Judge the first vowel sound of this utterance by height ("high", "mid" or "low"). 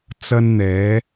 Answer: low